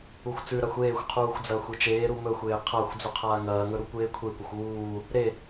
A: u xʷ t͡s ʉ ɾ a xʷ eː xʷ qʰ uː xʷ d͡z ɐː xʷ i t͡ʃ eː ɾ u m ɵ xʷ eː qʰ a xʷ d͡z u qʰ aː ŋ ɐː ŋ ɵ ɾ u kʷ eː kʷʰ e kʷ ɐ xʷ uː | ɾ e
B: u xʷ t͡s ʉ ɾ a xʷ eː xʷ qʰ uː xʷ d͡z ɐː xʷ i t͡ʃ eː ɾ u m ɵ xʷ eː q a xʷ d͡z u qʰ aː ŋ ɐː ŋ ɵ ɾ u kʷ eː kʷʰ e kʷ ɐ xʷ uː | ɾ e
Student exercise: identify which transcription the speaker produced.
A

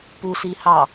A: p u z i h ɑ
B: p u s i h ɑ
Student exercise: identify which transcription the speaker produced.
B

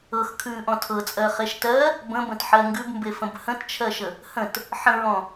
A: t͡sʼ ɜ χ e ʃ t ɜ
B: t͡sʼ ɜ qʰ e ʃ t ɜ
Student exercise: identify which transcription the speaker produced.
A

